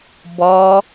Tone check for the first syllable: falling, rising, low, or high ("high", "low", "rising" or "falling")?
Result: high